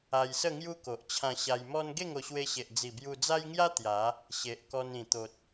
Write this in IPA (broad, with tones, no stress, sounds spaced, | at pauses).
a˧ j s ə˥˧ ŋ j u˦ k o˨ ʔ t͡ɕʰ ã˧ ɕ a˧ j m ɔ˦ n ɡ e˥˧ ŋ o˧ ɕ w e˧ ɕ e˨ ʔ d͡z i˨˩ b j u˧ d͡z a˦ j ŋ j a˦ t̪ j a˨˦ | ɕ e˨ ʔ k ɔ˧ n ĩ˨˩ t̪ o˨ t̚